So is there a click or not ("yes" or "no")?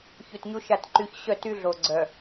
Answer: yes